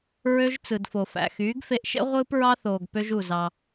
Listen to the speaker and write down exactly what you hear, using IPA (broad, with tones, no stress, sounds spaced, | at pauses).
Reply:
ɹ ø˦ ʒ t͡s ɯ˨ d f o˨ f æ̰˨ x yː˨˦ ɡ f e˧ ʔ ʃ ḛ˦ ʁʷ ɯː˦ p ɹ ɑ˦ θ oː˨ ɡ p ø˦ ʒ u˦˨ z ɑ˧